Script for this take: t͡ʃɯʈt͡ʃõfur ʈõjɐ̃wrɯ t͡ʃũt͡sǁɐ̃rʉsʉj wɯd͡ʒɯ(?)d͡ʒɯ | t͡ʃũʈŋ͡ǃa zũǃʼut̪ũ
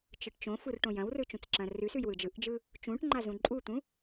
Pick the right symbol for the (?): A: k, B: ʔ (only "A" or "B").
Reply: B